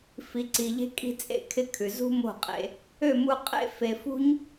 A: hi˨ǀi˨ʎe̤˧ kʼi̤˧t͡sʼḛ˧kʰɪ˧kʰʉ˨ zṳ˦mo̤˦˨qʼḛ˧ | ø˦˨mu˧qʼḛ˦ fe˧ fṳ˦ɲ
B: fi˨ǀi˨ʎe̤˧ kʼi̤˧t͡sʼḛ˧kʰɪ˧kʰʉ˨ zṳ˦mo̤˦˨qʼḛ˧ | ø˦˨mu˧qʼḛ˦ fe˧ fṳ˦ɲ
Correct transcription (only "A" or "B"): B